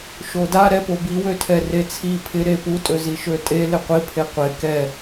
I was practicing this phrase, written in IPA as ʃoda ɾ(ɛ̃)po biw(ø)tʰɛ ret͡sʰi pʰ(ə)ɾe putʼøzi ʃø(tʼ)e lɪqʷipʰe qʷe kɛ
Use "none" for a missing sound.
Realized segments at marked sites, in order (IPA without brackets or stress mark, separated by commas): ɛ, ø, ɪ, tʼ